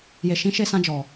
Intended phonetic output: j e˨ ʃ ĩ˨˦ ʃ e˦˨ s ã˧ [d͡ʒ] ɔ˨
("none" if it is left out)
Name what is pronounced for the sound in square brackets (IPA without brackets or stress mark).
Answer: d͡ʒ